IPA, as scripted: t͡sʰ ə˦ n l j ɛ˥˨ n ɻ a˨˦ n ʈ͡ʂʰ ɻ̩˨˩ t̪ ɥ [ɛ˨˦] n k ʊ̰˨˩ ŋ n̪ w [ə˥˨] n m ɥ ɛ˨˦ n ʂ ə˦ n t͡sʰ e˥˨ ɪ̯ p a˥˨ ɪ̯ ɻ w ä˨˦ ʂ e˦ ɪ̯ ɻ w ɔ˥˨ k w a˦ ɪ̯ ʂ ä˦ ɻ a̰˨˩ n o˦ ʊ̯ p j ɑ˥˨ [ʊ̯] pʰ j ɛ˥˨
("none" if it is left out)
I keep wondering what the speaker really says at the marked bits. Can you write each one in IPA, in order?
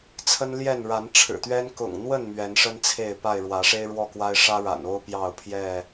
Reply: ɛ˦, ə˥˨, ʊ̯

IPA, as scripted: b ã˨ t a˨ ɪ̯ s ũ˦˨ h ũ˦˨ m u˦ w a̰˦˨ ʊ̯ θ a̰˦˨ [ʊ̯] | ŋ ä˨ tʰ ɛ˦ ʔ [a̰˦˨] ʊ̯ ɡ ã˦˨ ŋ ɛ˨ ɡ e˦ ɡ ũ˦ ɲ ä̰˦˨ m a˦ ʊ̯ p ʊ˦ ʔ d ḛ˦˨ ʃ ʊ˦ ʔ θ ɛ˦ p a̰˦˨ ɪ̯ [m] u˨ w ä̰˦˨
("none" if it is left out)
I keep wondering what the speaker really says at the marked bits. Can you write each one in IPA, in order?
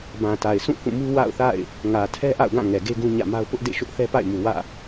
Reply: ɪ̯, a̰˦˨, m

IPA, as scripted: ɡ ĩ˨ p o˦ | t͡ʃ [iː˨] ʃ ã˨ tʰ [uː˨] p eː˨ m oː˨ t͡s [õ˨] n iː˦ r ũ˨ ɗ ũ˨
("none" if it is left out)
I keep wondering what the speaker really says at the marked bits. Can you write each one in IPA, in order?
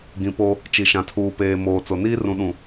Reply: i˨, uː˨, o˨

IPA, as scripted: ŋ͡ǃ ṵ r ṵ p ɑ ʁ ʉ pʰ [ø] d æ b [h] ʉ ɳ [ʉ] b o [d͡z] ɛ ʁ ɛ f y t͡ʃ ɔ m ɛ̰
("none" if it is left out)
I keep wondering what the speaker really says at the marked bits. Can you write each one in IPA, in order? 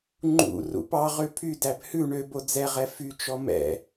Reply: y, h, ø, d͡z

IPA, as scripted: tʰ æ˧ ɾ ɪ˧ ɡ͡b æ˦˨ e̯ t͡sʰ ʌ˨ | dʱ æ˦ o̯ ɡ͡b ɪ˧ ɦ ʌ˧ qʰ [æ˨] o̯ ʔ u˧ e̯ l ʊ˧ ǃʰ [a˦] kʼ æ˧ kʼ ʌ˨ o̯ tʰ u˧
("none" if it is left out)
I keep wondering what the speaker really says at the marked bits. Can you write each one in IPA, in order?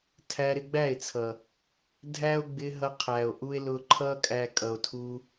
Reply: æ˨, ʌ˦

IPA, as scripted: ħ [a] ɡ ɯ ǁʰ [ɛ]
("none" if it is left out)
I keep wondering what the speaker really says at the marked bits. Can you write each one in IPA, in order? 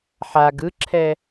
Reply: a, ɛ

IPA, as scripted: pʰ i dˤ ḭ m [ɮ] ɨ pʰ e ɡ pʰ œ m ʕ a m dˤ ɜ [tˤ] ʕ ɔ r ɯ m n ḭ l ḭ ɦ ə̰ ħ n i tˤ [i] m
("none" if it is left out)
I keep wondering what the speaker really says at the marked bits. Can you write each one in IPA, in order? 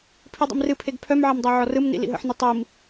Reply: r, none, i

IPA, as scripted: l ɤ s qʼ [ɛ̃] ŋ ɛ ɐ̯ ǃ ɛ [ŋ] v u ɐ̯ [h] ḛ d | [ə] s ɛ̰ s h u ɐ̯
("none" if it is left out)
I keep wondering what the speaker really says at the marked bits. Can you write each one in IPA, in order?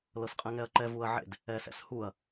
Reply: ɛ̃, none, ʕ, ɛ

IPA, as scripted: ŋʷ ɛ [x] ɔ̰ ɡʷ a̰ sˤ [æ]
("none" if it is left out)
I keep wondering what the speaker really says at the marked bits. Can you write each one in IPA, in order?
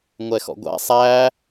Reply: x, æ

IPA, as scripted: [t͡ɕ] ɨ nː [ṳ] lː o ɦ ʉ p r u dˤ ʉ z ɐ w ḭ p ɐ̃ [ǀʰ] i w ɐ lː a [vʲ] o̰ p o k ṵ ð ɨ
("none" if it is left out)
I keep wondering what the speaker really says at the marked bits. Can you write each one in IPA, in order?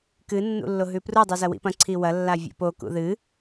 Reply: k, ṵ, ǀʰ, vʲ

